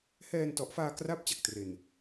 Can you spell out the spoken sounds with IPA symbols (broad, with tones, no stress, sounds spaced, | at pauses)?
h ɛː˧ n t ɔ˨˩ ʔ f aː˧ k r a˦˥ p̚ t͡ɕ a˨˩ k̚ t r e˨˩ n